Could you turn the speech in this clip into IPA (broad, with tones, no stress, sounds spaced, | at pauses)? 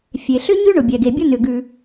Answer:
fʲ e˩ ɬ ʏ˥ ɲ ʉ˥ ɳ ʊ˩ bʲ ɛ˩ ɡ e˩ bʲ ʊ˥ n ʏ˩ ɡ ʉ˩